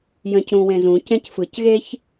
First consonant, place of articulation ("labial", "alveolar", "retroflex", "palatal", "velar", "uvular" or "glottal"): palatal